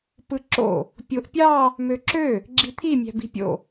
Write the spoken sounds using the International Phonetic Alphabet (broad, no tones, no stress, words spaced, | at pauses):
pɯǁo̰ | pʲoʔpʲɑ | møǁø | ɡ͡ǁit̪ʰi mʲæ̤bi̤pʲo̰